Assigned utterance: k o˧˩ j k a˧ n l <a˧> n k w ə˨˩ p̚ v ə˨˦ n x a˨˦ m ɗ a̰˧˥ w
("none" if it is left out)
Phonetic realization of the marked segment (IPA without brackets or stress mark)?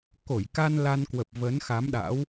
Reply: a˧